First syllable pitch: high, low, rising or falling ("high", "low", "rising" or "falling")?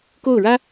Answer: falling